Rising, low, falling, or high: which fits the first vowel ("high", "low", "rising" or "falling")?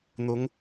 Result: rising